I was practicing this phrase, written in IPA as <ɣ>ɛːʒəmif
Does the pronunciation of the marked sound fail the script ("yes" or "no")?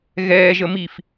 no